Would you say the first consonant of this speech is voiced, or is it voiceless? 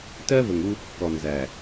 voiceless